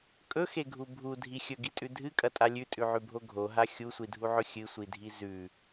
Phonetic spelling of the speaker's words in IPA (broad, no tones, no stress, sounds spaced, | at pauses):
kʼ ɵ x e ɡʱ u bʱ u dʱ i xʲ ɵ ɡ i tʼ ʉ dʱ ɨ kʼ ɐ tʼ a lʲ ʉ tʼ ʉ ʕ ʉ bʱ o ɡʱ o ɦ a xʲ u sʷ i dʱ u ʕ ɵ xʲ ɨ sʷ i dʱ i z ʉ